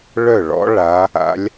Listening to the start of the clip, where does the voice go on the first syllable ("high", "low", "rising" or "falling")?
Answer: falling